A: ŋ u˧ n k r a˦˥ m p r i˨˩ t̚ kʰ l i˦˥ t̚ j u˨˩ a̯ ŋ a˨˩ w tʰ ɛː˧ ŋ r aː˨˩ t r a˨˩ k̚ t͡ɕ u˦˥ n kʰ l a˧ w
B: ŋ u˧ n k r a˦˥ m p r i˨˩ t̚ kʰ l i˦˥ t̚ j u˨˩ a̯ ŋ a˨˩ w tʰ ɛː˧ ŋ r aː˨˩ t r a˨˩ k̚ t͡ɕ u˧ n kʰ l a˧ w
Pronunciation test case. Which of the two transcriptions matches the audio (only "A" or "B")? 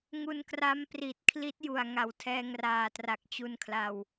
B